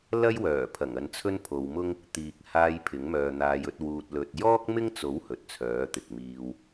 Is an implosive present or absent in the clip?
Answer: absent